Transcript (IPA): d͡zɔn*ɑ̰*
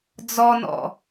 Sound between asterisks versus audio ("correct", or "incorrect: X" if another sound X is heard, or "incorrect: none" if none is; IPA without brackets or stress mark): incorrect: ɔ̰